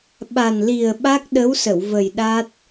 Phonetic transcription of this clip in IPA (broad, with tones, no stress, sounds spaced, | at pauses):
ɓ a˨˩ n l i˨˩ ə̯ ɓ a˦˥ k̚ ɗ ə˧˥ w s ə˨˩˨ w v ə˨˩ j ɗ a˦˥ t̚